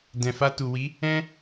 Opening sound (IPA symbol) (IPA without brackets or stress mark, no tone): d